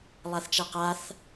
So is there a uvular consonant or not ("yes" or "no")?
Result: yes